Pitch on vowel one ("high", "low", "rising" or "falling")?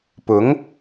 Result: rising